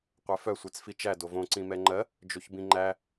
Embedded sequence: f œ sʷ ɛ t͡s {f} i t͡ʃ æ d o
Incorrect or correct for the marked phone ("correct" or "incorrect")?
correct